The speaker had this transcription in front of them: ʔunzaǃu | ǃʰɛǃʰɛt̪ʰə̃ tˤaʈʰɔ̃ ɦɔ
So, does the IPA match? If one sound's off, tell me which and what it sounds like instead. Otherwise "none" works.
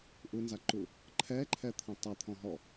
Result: ʈʰ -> t̪ʰ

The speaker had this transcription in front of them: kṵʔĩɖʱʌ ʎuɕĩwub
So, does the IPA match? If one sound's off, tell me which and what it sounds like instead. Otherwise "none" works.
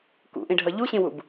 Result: none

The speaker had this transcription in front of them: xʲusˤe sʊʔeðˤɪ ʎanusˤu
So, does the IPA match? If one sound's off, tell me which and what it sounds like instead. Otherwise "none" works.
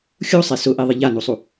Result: none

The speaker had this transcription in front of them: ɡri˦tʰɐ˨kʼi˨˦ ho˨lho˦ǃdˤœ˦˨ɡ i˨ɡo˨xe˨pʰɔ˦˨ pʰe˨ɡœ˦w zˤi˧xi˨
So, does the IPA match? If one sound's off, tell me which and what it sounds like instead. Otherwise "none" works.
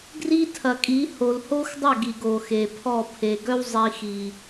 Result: ǃ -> x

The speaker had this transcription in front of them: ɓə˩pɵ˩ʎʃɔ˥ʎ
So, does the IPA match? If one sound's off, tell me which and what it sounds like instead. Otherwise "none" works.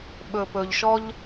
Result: ə˩ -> ɵ˩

